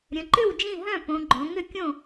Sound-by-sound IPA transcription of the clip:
ɾʲə̃˩˧ǃʏ˥˨w d͡ʒĩ˥˨ɦœ̃˥˨põ˩˧ɡ͡ǃõ˩˧ ŋʏ˥˨kʲõ˥˨

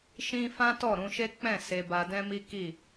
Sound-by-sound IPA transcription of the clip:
ʃĩ˦ fã˦tɔ˦˨ɾũ˧ʃe˦ k͡pɛ̃˦˨ se˧ba˧dɛ̃˦ mi˦ki˦˨

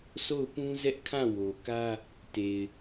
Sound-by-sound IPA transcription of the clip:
sʰo˦˨ʊ̯pũ˦ zɛ˦ʔ kʰã˦˨wo˨kä˦ | te˨ɪ̯

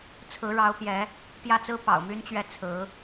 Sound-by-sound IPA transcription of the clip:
t͡sʰɹ̩˧˥ɻɑ˧˥ʊ̯pjɛ˧˥ | pjä˥˩t͡sɹ̩˥ pɑ̰˨˩ʊ̯my˥nt͡ɕɥɛ˥˩ t͡sʰɹ̩˧˥

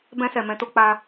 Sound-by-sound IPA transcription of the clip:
bɛ̃˧sɛ˨ mɛ̃˧to˧ k͡pa˧

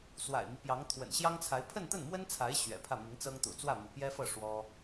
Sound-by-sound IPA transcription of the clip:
swa̰˨˩ɪ̯mi˦ pjɑ˧˥ŋ t̪ʰwə̰˨˩nɕjɑ˥ŋt͡sʰa˧˥ɪ̯ pʰə˥˧nt̪ə˥˩nmwə˥nt͡sʰa˧˥ɪ̯ ɕɥɛ̰˨˩pʰä˥˩mi˧˥ŋt͡sɤ˥ŋ t̪ṵ˨˩t͡swä˥˩ mṵ˨˩pjɛ˥fɤ˥˩ ʂwɔ˥

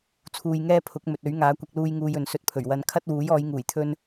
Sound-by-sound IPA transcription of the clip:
t͡sʰuː˧jŋɛː˥pʰʊ˨˥k̚ mɵ˨t̚ɵ˨˥ɥŋaː˨˥ kʷɐ˧k̚luː˧j ŋuː˧jɵ˨nsɵ˧t̚pʰɵ˨˩ɥ wɐ˧n kʰɐ˥t̚wuː˨˥j ɔː˨˧jŋuː˨˩jt̪ʰɵ˧n

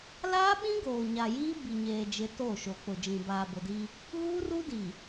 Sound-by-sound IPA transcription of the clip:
laː˦ɓĩ˦ ɡoː˨ɲa˨jiː˦ bi˨ɲeː˨ d͡ʒɪ˨˦ to˦˨ʃo˨ k͡pʊ˨d͡ʒĩ˨ baː˨bʊ˨diː˦ | ɣuː˦ru˦diː˨

